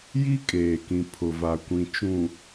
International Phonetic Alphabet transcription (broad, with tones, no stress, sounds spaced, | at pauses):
j i˦ kʼ eː˨ k ĩ˨ pʰ ʊ˨ v a˨ kʷ ĩ˨ t͡ʃ ũ˨